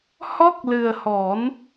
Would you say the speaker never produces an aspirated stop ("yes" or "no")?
yes